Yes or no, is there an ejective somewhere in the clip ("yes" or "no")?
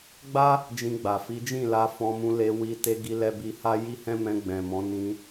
no